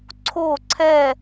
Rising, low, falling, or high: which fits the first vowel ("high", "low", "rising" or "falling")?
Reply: falling